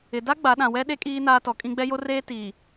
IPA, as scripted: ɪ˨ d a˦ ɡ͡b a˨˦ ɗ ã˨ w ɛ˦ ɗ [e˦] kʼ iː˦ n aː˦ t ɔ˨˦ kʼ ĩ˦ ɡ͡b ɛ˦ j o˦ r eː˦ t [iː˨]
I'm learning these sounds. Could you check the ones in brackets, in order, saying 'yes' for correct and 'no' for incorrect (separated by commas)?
yes, yes